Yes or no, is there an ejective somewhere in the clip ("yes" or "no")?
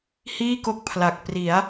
no